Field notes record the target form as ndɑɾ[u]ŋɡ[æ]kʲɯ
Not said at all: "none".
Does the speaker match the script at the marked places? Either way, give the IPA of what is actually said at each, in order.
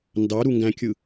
u, æ̃

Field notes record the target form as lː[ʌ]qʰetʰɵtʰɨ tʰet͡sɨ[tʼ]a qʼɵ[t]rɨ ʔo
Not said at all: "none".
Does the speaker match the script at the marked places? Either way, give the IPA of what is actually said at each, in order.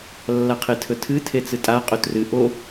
a, tʼ, t

